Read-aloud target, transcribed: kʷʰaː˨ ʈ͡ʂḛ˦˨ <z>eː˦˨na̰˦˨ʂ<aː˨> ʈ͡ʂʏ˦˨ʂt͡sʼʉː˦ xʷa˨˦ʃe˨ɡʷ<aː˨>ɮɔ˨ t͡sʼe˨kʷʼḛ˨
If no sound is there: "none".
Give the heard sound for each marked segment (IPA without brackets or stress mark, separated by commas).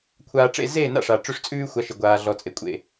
z, a˨, aː˨